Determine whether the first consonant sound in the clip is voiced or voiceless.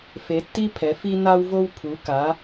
voiceless